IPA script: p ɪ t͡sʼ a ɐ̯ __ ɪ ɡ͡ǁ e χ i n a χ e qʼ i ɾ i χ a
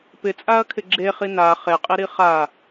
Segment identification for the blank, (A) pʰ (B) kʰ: B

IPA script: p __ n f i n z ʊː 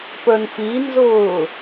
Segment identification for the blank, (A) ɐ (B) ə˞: B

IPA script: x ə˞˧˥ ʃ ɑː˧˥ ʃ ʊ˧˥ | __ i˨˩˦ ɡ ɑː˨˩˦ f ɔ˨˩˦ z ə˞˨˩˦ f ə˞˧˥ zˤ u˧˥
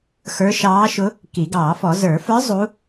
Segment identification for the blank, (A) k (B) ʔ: A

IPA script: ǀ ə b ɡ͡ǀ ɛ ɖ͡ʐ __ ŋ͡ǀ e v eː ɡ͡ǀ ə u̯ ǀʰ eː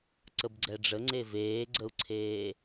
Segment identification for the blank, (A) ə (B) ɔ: A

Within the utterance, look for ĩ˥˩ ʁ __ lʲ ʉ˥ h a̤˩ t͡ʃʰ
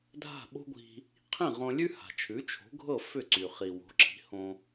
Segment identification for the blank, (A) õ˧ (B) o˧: A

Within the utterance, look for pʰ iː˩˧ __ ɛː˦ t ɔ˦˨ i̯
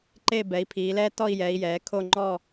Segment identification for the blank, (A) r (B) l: B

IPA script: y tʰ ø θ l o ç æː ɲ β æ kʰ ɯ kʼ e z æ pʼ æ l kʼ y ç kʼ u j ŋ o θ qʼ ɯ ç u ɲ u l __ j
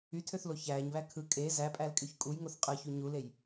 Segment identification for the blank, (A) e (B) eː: A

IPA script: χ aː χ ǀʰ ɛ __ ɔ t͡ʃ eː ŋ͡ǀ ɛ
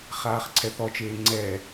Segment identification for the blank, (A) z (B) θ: B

